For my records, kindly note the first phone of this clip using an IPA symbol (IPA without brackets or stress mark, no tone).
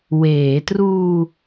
w